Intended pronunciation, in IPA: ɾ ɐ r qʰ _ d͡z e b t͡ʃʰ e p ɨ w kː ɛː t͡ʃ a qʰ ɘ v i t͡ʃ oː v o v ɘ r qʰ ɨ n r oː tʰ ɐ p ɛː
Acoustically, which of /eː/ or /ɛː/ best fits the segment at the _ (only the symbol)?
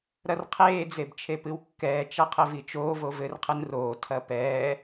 eː